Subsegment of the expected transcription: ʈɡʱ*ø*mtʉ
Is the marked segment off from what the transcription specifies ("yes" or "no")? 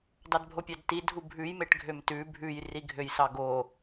no